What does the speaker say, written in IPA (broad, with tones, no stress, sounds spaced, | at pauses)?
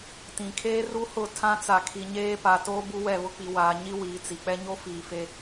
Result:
t ĩ˨ kʰ eː˦ r u˦ h ʊ˦˨ tʰ ã˦ t͡s a˨ kʰ i˨ ɲ eː˦ p a˨ t o˦ b u˦ w ɛ˦˨ β ʊ˦ k͡p i˨ w aː˨ ɲ i˦ w iː˨ t͡s i˨ k͡p ɛ˦ ɲ o˦ f iː˨ f e˦